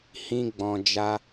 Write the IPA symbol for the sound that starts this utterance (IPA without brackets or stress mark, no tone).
h